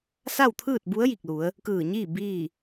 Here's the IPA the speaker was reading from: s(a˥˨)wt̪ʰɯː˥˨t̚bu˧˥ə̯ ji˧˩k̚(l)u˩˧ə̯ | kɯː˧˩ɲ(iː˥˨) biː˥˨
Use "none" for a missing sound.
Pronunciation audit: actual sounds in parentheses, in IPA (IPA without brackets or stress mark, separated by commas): a˥˨, l, iː˥˨